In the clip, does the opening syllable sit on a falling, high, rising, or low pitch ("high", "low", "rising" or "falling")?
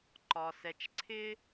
low